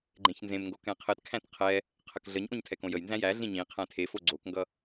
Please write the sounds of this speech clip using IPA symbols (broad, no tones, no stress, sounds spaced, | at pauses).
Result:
ɡ͡ǃ ẽ ç n z ẽ m ŋ ɡ o k ɛ̃ qʰ ɘ t kʰ æ̃ t qʰ ɛ | qʰ ə k ɮ ə ɲ ʔ õ ɲ tʰ ɛ k õ j ə j n z æ̃ j æ ɮ ĩ ɲ ĩ qʰ æ̃ tʰ e f o ɡ͡ǀ o k ŋ ɡ ʌ